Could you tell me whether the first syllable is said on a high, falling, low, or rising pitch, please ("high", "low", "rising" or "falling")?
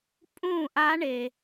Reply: falling